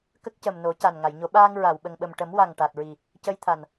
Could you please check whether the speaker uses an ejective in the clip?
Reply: no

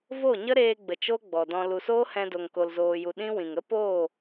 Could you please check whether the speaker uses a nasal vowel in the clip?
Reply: yes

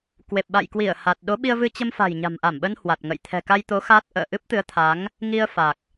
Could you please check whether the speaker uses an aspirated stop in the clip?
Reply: yes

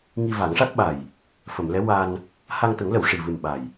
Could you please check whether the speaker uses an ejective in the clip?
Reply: no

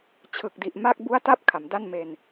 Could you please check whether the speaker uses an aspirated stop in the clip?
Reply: yes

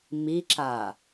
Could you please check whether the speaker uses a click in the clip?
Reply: yes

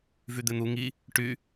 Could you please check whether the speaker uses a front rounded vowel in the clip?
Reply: yes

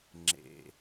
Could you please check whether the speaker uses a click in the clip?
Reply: yes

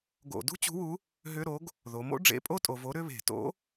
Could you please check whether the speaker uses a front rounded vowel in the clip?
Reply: yes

